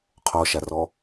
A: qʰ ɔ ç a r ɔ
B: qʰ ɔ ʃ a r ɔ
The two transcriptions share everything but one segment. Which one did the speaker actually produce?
B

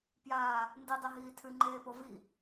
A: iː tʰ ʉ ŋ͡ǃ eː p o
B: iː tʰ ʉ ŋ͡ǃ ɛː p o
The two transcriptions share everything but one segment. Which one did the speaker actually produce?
A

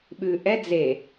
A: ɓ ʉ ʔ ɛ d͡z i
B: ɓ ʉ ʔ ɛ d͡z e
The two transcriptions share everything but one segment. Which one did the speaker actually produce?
B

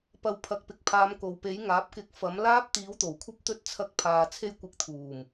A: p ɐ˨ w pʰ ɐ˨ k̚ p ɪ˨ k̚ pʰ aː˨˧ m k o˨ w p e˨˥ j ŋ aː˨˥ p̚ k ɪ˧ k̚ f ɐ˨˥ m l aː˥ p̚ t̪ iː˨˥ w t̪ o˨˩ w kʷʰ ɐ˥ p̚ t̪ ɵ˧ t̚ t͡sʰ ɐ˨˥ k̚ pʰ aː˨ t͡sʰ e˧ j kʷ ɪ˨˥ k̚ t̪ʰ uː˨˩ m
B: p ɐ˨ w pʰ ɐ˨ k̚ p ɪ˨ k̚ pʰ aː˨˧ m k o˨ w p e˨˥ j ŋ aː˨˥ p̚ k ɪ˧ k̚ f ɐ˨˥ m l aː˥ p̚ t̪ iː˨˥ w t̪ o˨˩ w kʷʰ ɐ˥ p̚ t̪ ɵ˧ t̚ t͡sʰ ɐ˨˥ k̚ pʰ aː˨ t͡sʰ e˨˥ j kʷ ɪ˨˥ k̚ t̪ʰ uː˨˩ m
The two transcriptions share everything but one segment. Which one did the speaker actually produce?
A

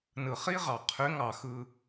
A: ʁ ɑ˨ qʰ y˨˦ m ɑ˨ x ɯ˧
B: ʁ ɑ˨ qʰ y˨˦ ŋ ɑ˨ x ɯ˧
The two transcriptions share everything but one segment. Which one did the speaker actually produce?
B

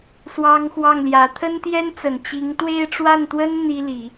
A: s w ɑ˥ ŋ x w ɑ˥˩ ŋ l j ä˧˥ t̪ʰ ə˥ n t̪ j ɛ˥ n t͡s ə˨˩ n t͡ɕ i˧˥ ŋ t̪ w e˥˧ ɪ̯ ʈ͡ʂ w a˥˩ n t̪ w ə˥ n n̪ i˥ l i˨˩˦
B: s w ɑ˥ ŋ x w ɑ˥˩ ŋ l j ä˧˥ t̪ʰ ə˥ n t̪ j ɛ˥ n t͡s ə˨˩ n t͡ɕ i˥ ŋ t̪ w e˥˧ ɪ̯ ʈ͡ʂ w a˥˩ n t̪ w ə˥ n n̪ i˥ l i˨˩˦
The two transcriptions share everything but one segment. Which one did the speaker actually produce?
A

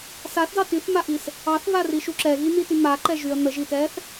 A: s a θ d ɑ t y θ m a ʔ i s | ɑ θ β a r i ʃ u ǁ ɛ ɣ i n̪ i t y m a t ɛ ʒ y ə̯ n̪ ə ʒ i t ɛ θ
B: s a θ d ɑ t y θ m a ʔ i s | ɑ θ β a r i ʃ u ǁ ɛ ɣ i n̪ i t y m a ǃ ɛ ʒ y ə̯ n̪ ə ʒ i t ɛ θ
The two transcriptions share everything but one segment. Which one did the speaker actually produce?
B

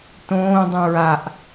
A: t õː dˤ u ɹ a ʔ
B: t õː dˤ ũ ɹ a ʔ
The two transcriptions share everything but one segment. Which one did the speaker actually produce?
B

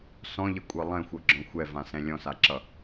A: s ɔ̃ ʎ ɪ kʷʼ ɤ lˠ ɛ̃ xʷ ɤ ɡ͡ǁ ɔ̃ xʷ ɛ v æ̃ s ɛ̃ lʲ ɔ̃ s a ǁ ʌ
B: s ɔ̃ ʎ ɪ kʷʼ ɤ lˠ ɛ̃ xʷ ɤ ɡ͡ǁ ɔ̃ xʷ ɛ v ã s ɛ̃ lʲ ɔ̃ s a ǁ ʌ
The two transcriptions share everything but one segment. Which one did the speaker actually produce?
B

